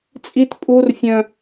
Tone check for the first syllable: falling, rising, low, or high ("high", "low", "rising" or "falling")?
high